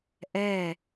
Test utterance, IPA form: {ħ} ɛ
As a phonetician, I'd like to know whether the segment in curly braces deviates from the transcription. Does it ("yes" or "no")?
yes